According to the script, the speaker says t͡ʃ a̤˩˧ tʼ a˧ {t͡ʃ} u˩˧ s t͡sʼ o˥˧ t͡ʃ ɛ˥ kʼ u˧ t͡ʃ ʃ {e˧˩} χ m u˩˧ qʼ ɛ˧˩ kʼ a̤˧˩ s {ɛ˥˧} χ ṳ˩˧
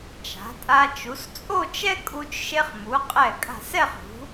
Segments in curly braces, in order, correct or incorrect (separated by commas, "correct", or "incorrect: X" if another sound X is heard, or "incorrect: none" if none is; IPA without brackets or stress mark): correct, incorrect: e˧, correct